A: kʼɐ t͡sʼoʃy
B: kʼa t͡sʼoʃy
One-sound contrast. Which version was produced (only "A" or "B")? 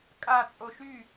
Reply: B